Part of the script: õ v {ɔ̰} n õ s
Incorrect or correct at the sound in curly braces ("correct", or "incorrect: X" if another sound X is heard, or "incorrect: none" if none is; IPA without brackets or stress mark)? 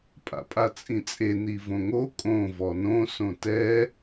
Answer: incorrect: ɔ